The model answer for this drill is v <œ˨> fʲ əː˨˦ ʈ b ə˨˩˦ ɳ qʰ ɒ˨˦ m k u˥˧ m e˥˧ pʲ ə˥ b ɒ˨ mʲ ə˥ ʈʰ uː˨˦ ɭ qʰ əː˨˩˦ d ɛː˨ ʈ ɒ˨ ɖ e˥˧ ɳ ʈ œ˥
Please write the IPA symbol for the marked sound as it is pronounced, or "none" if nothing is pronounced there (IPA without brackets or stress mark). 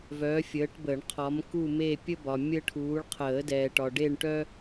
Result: œ˨˦